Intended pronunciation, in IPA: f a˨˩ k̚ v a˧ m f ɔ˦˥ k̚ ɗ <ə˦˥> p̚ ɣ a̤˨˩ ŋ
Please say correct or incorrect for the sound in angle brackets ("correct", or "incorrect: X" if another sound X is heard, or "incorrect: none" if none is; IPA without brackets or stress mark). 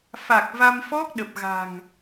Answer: incorrect: ə˨˩